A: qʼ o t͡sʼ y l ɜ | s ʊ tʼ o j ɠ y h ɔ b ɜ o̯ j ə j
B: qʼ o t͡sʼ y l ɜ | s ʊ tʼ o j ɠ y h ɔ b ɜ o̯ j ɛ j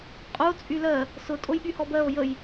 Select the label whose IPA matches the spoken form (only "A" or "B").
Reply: A